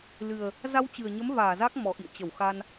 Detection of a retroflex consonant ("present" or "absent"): absent